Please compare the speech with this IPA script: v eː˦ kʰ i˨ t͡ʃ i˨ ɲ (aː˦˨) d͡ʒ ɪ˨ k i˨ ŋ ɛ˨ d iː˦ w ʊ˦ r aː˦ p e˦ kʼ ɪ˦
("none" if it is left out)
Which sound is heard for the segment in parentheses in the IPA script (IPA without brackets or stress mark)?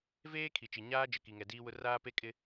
aː˦